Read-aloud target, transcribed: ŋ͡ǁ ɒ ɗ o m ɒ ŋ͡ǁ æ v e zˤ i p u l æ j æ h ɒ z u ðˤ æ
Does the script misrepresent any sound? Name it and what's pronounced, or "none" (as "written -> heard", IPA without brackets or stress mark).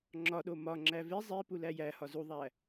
none